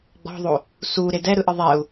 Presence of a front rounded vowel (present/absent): absent